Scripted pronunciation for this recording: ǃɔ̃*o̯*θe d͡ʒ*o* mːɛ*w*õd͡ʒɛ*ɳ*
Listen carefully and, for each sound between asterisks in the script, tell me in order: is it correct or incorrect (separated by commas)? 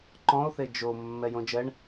correct, correct, incorrect, correct